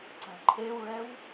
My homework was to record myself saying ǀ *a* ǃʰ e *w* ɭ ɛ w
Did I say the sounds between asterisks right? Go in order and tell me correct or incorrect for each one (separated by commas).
incorrect, correct